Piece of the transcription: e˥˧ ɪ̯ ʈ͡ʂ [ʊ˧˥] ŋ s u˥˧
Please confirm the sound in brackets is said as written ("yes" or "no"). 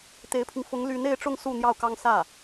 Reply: no